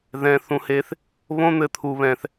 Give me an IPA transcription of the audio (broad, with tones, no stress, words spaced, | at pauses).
ðɛ̃˧ θũ˧he˧θ | βõ˦n̪ɘ˧t̪ʰu˧βɛ̃˧θ